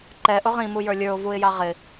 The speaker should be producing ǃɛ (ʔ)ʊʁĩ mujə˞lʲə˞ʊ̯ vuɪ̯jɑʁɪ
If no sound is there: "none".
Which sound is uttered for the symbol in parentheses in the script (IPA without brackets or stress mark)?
ʔ